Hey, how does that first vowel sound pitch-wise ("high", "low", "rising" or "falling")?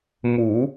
low